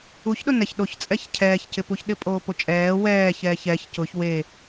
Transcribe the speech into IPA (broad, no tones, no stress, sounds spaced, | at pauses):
u ç ɗ ʊ n ɛ ç ɗ o ç t͡sʼ ɛ ç cʰ ɛː ç c ɪ p u ç ɗ ɪ pʼ oː p o t͡ʃʼ ɛː w ɛː ç ɛː ç ɛ ç c ʊ ç w e